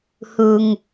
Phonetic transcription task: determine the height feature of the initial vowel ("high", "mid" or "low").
high